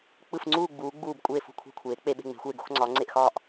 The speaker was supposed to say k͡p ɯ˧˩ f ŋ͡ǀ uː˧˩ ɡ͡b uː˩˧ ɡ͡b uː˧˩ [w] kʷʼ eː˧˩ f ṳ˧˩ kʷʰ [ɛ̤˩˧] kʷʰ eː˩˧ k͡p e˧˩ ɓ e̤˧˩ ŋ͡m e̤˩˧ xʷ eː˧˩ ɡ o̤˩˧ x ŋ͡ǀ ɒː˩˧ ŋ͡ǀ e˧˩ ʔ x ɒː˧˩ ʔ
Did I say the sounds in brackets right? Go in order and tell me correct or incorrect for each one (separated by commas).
incorrect, incorrect